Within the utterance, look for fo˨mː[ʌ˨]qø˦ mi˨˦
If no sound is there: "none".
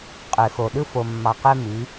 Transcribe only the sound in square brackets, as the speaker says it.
ɑ˨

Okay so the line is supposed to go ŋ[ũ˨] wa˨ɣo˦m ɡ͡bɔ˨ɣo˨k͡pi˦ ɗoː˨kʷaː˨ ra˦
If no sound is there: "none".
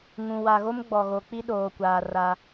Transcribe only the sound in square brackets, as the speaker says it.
ũ˨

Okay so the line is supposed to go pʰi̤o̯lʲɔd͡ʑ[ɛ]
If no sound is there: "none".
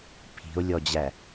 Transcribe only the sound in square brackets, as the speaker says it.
æ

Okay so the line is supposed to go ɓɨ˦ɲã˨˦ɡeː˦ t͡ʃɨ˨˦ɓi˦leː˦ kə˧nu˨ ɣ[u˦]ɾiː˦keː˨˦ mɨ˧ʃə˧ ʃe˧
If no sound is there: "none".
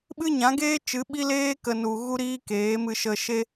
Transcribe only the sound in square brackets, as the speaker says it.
u˦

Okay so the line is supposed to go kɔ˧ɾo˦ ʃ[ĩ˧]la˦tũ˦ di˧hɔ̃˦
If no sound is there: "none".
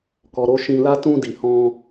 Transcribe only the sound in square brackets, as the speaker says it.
ĩ˧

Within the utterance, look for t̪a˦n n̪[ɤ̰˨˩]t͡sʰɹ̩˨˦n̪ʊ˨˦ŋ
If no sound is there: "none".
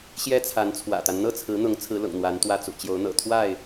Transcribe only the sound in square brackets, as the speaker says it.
ɤ˥˨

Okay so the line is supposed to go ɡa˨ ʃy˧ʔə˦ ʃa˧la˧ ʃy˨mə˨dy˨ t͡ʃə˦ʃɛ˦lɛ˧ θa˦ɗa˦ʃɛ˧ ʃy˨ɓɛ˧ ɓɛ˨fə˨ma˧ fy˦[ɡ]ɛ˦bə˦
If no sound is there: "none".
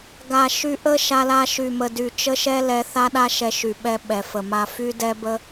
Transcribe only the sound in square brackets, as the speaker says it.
d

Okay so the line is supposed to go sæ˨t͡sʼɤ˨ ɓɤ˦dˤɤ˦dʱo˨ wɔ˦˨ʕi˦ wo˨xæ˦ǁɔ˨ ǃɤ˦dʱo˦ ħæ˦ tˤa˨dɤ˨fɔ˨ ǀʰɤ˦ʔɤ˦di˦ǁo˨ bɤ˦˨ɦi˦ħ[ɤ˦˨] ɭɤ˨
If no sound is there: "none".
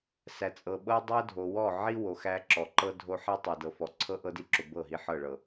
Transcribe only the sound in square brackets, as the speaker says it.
ɤ˦˨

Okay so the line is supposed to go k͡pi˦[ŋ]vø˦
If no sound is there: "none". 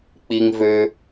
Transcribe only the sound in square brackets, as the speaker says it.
ŋ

